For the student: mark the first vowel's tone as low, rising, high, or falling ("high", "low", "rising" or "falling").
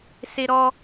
high